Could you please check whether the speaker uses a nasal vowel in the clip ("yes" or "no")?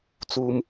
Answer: no